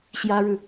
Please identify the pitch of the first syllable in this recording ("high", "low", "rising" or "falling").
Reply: high